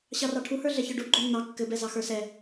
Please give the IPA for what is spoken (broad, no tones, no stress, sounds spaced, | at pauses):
ɕ ɑ r ɑ ʈʰ u h ə˞ ɮ ɛ ç ə˞ ɖ u ɡ͡ǃ o nː ɑ kː ɘ b ɛ z ɑ x ə˞ s ɛ